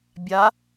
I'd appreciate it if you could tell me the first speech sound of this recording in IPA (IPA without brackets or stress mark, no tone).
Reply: bʲ